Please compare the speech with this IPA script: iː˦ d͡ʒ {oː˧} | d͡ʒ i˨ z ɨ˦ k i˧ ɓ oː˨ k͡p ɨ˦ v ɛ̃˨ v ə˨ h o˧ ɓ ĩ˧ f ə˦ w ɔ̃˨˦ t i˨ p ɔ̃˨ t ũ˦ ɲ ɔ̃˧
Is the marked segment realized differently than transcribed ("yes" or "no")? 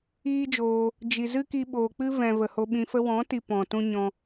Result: no